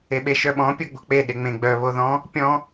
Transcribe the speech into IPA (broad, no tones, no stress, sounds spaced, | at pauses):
e ɓ e ʃ œ ɓ ɔ̃ pʲ o ɡ͡b o̤ k͡p e ɗ e ŋ͡m ẽ ɡ͡b œ β o ð ɔ̃ | pʲ ɔ̃